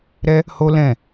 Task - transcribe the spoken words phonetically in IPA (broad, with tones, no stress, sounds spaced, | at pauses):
ɾ ɛ˦ | h o˦ l ɛ̃˦˨